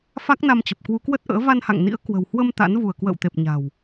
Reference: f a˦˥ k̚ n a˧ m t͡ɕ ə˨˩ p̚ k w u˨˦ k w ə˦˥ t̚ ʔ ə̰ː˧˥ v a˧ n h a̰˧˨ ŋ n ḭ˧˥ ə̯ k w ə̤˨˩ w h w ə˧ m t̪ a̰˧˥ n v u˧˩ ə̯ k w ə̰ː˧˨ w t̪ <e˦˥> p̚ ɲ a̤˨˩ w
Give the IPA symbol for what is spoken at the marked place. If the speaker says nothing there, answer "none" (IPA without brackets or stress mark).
e˨˩